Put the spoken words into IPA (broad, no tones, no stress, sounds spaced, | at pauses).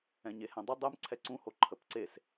ɛ̃ ɲ e h ɛ̃ dˤ ə dˤ ɛ m ǀʰ ɛ ǀ ũ h o ǃʰ ə p ǀ e s